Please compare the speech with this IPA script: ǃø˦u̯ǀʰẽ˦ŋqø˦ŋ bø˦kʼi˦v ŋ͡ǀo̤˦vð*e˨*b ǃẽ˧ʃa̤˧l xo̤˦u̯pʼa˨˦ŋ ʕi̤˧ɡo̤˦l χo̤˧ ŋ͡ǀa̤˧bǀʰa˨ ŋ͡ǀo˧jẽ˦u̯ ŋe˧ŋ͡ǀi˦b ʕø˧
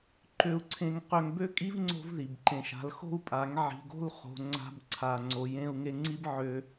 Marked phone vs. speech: incorrect: i˨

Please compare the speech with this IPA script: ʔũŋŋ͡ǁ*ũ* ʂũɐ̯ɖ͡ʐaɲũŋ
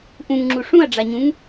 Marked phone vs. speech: incorrect: u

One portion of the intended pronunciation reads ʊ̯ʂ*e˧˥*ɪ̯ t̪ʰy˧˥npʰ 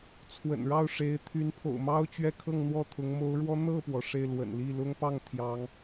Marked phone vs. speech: correct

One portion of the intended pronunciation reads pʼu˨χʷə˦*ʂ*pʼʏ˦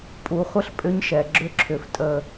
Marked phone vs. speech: incorrect: ɬ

